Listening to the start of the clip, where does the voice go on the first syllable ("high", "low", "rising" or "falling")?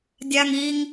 high